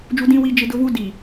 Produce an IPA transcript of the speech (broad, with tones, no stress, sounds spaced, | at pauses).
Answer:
d͡ʒ u˦ d ĩ˦ w i˦ d͡ʒ ɪ˦ d ʊ˦ v u˦ d i˨